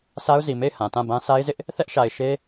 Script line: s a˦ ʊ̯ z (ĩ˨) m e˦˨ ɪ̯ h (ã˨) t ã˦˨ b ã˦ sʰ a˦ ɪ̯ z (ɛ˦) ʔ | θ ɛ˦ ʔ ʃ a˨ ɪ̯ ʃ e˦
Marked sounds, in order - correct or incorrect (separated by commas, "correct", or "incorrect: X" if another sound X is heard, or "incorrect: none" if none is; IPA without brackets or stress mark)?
incorrect: i˨, correct, incorrect: ɪ˦